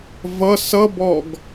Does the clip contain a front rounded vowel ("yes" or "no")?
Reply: no